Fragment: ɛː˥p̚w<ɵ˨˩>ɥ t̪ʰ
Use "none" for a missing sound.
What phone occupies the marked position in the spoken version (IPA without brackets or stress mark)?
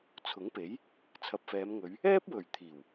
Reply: ɵ˨˩